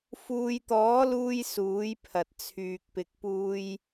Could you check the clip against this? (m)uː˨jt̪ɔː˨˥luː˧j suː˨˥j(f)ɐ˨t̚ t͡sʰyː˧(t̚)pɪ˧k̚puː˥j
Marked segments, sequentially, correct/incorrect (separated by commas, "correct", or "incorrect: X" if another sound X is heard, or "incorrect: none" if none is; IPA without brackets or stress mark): incorrect: f, incorrect: pʰ, incorrect: k̚